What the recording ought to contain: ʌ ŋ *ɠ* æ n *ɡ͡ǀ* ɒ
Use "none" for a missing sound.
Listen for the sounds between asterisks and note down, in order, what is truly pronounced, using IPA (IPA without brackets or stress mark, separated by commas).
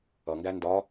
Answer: ɡ, d